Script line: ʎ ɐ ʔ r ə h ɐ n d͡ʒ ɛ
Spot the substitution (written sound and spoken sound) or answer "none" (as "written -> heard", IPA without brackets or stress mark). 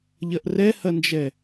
ə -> ɛ